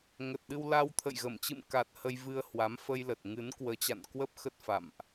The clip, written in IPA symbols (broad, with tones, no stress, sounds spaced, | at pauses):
ŋ ə˨˩ t̚ ɗ ɨ˧ w l a˧ w t̪ʰ ə̰˧˨ j ɣ ə˧˩ m t͡ɕ ɨ̰˧˨ m k a˨˩ t̚ h ə˧ j v ɨ˧ ə̯ h w a˨˦ m f ə˧ j l ə˨˩ t̚ ŋ ɨ˨˦ n k w əː˨˦ t͡ɕ a̰˧˨ n k w ə˦˥ p̚ x ə˦˥ t̚ f a̰˧˨ m ʔ